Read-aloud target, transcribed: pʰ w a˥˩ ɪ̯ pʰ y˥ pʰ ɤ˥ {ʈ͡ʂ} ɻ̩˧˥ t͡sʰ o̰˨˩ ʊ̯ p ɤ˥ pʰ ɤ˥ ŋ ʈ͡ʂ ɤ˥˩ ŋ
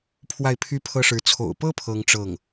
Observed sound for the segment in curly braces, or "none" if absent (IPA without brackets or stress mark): ʂ